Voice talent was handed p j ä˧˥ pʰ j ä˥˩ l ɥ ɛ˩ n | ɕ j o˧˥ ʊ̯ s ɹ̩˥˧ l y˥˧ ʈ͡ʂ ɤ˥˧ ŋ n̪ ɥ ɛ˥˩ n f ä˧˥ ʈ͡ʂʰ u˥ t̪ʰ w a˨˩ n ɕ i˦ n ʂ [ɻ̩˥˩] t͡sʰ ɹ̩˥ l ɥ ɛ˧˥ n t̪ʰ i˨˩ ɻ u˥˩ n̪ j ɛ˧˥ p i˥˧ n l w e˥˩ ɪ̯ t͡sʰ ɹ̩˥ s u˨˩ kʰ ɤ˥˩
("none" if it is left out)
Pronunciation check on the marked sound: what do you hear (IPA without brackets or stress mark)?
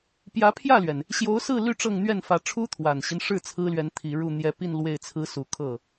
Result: ɻ̩˥˩